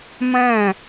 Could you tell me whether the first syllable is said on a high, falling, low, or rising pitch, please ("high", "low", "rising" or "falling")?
falling